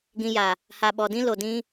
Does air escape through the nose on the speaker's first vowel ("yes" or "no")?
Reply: yes